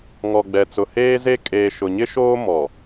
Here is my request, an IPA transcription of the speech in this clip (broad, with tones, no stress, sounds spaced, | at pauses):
ŋ ɔ˨ ɡ͡b ɛ˨ t͡s ʊ˨ h eː˦ z e˦ kʼ eː˨ ʃ ʊ˨ ɲ ɪ˦ ʃ oː˦ m ɔ˨